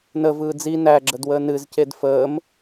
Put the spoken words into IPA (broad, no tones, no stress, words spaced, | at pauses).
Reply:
nəvɯː d͡zi næɡ͡ǁədwəː nɨzced fəːm